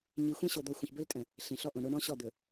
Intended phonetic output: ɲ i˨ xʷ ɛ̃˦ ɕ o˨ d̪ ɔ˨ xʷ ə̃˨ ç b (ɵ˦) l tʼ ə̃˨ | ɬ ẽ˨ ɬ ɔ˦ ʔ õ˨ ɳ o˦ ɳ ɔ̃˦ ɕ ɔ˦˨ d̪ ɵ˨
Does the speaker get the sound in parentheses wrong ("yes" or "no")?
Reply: no